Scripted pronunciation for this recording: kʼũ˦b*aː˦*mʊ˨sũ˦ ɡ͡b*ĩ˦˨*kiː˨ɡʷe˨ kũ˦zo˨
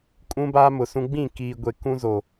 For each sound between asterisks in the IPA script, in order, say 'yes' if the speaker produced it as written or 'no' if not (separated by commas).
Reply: yes, yes